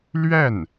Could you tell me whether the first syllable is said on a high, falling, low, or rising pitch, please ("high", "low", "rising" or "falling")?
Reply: falling